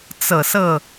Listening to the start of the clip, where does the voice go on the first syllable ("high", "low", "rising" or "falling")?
low